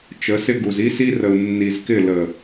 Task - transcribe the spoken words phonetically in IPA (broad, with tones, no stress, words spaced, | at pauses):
t͡ʃə˨˦sɪ˦ɡu˨z i˦si˦rə˨u̯ nːi˨zkɪ˦˨lə˨